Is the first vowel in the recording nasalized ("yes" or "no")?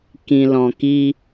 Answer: yes